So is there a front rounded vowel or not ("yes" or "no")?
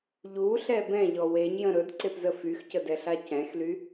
yes